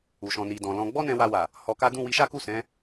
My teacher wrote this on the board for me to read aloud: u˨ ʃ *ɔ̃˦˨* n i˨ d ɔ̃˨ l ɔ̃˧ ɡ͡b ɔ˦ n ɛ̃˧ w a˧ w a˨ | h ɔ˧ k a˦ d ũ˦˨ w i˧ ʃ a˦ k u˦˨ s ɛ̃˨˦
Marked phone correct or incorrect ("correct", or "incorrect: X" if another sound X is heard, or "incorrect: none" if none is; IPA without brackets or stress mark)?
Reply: incorrect: ɔ̃˨